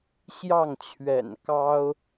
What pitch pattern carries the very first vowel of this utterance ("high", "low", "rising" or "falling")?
falling